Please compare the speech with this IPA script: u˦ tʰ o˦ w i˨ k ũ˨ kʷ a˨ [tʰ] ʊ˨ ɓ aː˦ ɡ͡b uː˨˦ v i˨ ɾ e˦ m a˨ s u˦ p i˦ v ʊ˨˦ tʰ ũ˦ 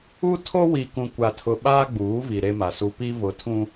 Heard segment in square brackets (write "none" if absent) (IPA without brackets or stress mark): tʰ